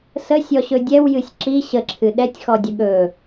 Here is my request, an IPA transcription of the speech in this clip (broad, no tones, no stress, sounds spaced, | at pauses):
s ə sʲ ɔ ɕ ɵ dʲ ɛ w j ɨ sʲ ǁ i ɕ ə ǁʰ ɨ ɗ ɛ tʲ x ɔ dʲ ə ɠ ɵ